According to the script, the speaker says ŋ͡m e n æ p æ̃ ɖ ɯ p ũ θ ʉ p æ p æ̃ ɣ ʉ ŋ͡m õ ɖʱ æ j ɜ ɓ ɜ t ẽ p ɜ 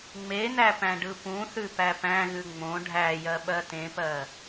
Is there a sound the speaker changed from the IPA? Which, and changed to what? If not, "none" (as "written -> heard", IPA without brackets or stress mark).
none